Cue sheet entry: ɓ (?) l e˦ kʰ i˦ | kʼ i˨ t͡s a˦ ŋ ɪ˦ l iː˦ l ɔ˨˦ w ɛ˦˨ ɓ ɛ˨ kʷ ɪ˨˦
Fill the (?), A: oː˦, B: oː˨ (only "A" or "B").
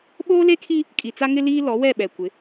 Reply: A